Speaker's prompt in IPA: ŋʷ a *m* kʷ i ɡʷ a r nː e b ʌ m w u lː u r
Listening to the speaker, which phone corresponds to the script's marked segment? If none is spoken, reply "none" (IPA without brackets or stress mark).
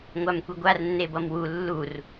m